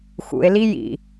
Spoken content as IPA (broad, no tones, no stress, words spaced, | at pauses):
xṵe̯li jḭ